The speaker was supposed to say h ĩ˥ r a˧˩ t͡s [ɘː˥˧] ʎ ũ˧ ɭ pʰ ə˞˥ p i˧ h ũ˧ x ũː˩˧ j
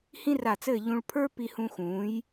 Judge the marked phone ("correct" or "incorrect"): correct